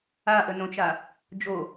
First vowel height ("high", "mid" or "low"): low